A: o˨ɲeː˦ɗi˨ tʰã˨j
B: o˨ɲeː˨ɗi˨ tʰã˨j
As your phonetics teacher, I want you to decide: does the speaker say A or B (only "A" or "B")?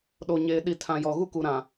B